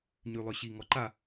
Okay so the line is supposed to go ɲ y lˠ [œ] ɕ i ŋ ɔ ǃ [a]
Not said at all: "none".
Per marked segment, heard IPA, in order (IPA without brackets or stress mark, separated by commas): œ, a